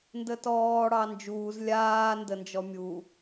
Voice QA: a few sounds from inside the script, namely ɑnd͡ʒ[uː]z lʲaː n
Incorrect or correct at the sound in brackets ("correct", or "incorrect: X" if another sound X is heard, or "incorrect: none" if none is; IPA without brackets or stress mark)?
correct